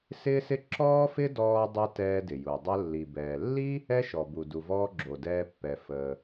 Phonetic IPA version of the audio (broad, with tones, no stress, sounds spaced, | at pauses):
s ɪː˥ s ɪ˥ ǁ ɔː˥ f ɪ˥ d ɔː˧ dˤ ɛ˧ t ɛː˧ d ɪ˩ j u˩ dˤ ə˧ lː i˩ b ɛː˩ lː i˥ | ɛ˥ ʃ ɔ˩ b u˩ d u˩ v ɔː˧ ɡ͡ǁ o˩ d ɛː˧ pː ɛ˩ f əː˩